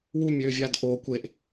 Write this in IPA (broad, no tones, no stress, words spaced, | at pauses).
wumʲøːvʲaːd ʔoːkʷ eʔ